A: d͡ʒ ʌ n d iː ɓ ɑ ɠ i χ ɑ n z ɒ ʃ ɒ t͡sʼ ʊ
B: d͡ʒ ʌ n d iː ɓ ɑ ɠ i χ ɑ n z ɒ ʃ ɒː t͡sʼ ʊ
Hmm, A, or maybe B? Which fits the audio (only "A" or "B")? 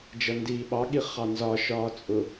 B